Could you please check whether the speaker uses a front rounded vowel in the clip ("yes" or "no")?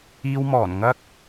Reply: no